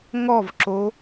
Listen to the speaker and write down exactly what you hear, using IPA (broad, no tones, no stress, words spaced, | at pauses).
ŋɔvǁo